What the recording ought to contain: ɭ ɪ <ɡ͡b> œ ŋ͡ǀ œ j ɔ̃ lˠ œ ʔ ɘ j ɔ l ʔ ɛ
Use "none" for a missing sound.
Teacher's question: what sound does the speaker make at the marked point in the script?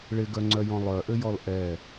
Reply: ɡ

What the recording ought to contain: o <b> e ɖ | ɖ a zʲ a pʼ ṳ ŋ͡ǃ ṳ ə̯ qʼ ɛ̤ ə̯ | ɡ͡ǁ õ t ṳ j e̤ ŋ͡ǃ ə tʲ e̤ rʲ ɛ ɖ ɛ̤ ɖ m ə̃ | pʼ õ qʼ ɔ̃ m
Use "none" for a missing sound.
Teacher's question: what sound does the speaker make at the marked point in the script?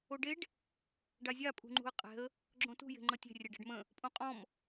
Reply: ɖ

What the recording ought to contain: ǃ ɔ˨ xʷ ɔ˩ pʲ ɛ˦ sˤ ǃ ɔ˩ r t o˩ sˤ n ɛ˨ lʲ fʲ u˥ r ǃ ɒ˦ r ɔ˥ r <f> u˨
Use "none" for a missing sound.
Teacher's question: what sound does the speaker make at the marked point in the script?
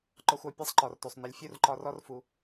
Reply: f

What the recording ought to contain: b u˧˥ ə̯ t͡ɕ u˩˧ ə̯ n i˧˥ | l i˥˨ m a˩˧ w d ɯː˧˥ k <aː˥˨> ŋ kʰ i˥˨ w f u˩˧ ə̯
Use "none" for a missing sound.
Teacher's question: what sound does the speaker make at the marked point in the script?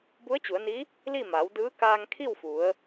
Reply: aː˧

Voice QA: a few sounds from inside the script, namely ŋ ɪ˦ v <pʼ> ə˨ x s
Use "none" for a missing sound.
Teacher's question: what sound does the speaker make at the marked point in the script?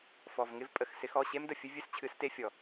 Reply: pʼ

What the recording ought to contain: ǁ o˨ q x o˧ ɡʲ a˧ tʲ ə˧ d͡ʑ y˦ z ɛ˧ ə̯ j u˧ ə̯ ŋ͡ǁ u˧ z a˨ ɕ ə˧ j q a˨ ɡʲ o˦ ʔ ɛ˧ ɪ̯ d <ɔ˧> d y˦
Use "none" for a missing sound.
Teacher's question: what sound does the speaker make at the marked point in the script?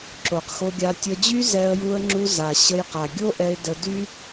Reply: ə˧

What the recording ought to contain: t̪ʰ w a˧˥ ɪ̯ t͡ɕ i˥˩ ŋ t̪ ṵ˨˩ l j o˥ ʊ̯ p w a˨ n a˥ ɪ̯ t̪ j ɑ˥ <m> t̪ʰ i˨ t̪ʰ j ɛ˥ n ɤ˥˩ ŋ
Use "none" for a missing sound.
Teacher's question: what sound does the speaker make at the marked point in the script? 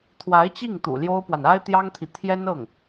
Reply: ŋ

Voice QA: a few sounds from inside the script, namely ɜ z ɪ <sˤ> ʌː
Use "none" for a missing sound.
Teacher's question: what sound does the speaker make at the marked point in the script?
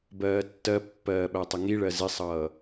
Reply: sˤ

